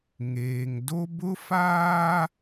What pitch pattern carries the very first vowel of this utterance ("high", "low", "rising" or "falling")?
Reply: low